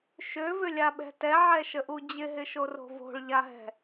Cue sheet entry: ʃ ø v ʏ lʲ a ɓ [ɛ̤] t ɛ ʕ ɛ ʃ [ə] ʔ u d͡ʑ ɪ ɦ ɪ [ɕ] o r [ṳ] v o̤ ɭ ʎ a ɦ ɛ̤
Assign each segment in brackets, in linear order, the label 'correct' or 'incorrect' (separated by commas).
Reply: correct, correct, incorrect, incorrect